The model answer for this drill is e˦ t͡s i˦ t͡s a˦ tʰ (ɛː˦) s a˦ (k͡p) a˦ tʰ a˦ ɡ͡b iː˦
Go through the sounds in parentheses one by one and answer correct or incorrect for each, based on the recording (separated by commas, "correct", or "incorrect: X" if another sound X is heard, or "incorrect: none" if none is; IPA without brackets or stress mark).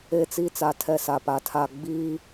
incorrect: ɛ˦, incorrect: p